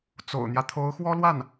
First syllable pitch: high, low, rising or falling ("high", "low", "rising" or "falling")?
low